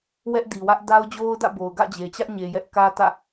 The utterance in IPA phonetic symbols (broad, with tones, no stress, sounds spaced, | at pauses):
w ɛ˦ ʔ d i˨ w ä˦ ʔ d a˦ ʊ̯ d͡ʑ o˦ ʊ̯ d ä̰˦˨ b o˨ ʊ̯ ɡ ä̰˦˨ d͡ʑ e˨ t͡ɕ ä˦ ʔ ɲ e˨ j ɛ˦ ʔ k ä˦ t ä̰˦˨